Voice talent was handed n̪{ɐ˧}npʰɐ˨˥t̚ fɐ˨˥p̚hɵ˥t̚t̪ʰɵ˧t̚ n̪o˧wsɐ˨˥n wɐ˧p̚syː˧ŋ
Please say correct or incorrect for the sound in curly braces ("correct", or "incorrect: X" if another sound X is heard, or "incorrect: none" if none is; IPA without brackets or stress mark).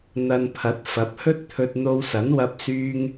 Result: correct